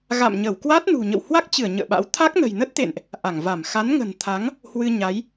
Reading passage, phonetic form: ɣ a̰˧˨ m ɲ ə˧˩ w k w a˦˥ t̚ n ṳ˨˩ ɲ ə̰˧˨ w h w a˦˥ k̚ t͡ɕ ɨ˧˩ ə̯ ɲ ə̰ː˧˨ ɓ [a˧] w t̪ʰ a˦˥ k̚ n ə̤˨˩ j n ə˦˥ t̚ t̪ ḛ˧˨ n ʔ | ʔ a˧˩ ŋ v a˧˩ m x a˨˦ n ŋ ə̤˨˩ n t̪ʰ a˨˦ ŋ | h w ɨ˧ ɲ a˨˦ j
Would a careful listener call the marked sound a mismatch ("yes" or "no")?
yes